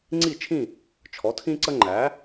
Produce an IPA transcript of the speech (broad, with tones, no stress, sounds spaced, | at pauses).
ŋ͡ǀ i˥˨ t͡ʃʰ ĩ˥˨ | t͡ʃʰ ɔ˩˥ tʰ ĩ˦ ǀ ə˦ ŋ͡ǃ æ˩˥